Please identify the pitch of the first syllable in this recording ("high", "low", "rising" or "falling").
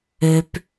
low